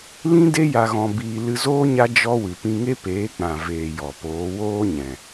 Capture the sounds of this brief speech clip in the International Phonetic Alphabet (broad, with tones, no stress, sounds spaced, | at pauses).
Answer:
l ĩ˦ d e˦ j a˧ ɣ ɔ̃˧ b iː˧ l ɨ˧ z oː˦ ɲ a˦ d͡ʒ ɔ˦ w ɨ˨ p ĩ˧ ŋ e˦ p eː˨˦ k͡p ã˨ v eː˨ j ɔ˨ p oː˨˦ w oː˦ ɲ ɛ̃˨